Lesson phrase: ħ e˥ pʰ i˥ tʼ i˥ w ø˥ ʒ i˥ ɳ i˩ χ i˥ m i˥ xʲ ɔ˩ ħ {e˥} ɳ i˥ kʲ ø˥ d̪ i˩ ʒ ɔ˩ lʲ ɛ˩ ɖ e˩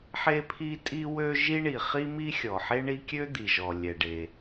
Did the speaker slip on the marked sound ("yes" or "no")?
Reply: no